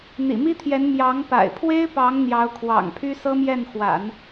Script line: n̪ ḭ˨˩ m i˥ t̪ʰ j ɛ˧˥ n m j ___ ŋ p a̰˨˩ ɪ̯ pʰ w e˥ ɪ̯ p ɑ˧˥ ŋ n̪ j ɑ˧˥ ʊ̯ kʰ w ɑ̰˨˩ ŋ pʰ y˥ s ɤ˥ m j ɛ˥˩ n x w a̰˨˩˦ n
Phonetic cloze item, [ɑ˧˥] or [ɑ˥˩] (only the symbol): ɑ˧˥